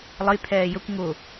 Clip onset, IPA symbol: lˠ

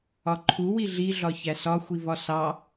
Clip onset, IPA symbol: ɒ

